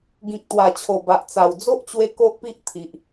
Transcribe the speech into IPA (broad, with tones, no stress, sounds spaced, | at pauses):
ɡ ĩ˨ k̚ t̪ w a˨˩ t͡ɕʰ o˨˩ b a˨ ʔ t͡s a˨˩ w d͡z o˦ ʔ t͡ɕ w e˧ k o˦ ʔ p i˦ ʔ t̪ʰ i˨ ʔ